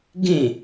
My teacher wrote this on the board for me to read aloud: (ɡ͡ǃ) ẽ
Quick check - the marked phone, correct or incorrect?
incorrect